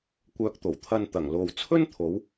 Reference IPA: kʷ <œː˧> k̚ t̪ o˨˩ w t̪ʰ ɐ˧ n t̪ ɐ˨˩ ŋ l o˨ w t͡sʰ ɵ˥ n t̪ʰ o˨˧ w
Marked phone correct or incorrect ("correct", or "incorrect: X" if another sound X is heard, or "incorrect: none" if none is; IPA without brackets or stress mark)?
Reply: correct